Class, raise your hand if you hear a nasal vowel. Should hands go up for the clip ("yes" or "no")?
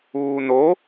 no